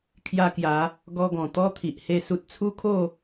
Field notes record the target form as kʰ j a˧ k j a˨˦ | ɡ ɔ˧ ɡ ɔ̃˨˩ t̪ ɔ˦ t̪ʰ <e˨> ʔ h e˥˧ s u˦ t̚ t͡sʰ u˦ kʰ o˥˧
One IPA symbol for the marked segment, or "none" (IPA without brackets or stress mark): i˨